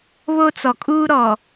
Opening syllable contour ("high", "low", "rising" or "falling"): high